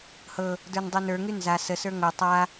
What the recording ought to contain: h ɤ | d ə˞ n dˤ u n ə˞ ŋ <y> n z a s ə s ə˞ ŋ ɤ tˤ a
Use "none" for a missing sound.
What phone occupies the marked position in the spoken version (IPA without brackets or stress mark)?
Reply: y